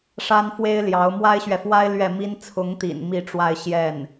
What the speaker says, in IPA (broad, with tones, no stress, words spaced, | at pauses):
ʂa˥nfwe˥ɪ̯ljɑ˧˥ʊ̯ mwa˥ɪ̯ɕɥɛ˨fwa˥ɪ̯ lɥɛ˥˩mi˥n t͡sʰʊ˧˥ŋt̪ḭ˨˩n mi˥˧ ʈ͡ʂwa˥˧ɪ̯ɕjɛ˥˩n